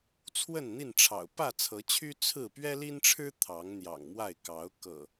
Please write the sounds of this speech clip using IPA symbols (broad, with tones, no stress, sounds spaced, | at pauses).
t͡sʰ w ə˥˨ n n̪ i˥˨ n ʈ͡ʂʰ ɑ̰˨˩ ʊ̯ p ä˥˨ t͡sʰ ɤ˨˦ t͡ɕʰ y˦ t͡sʰ ɹ̩˥˨ p ɥ ɛ˦ l i˦ n ʈ͡ʂʰ ɻ̩˦ t̪ʰ ɑ˨˦ ŋ n̪ j ɑ̰˨˩ ŋ m w a˥˨ ɪ̯ k ɑ˨˦ ʊ̯ k ɤ̰˨˩